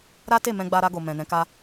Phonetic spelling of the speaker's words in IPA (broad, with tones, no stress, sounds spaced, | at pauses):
ɾ a˦ t e˦˨ m ɛ̃˧ ɡ͡b a˧ ɾ a˧ ɡ o˨ m ɛ̃˨ n ɛ̃˨˦ k a˧